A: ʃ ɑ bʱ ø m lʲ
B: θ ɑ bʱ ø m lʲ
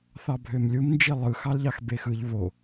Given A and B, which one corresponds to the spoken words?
B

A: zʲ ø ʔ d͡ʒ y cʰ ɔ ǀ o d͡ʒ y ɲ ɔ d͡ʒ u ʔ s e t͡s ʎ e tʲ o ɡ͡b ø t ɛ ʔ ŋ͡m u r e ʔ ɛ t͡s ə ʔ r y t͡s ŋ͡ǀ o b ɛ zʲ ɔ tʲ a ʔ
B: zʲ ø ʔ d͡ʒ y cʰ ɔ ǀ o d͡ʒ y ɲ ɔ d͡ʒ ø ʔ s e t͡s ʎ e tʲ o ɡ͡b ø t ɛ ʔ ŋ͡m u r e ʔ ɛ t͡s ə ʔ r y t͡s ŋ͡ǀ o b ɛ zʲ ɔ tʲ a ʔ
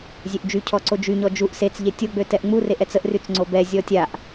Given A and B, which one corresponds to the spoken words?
A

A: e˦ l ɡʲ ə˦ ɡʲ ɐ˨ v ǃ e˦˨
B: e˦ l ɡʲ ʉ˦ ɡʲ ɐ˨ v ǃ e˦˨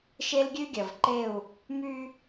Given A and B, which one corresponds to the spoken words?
B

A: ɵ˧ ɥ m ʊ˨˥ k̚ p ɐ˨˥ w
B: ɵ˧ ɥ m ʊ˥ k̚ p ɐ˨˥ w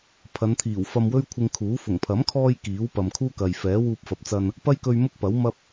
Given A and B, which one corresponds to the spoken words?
B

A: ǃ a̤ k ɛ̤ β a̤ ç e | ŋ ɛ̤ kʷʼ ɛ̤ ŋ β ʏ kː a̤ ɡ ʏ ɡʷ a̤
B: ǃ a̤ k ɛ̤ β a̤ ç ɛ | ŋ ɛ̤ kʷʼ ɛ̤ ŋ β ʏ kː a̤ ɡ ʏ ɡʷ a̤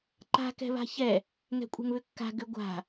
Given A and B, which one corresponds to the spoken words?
B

